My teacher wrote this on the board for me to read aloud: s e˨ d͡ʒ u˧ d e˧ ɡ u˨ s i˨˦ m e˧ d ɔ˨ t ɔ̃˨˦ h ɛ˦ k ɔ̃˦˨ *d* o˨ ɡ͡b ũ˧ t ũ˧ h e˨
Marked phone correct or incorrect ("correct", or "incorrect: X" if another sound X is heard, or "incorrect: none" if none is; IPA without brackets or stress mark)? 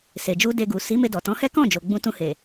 incorrect: d͡ʒ